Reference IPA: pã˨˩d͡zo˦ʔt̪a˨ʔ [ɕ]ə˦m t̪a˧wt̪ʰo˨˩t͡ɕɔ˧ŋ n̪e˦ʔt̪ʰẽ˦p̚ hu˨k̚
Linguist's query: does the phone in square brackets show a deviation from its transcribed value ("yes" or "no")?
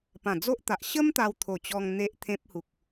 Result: no